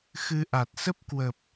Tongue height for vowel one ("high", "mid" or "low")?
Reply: high